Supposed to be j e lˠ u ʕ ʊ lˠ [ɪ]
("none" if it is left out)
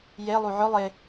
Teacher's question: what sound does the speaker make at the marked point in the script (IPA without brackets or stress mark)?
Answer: ɪ